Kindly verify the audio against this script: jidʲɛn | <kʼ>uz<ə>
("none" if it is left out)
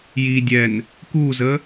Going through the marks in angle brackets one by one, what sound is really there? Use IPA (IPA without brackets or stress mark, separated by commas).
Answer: k, ə